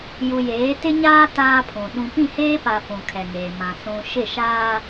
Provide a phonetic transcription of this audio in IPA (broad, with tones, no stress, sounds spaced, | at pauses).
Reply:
j u˨ j eː˨˦ t ɪ˦ ɲ aː˦ t aː˦ pʰ ũ˨ ɗ ũ˨ p ĩ˦˨ h eː˦ p a˨ f ũ˨ kʰ ɛ˨ ŋ eː˨ m ã˨ s ũ˨ ʃ ɪ˦˨ ʃ aː˦